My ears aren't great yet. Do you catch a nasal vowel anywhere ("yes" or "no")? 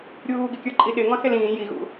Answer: yes